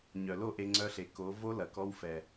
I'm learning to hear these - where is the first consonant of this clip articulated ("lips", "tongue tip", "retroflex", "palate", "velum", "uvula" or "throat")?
palate